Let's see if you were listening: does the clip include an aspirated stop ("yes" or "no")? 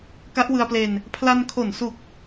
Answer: yes